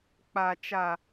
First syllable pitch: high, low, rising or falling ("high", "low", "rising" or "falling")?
low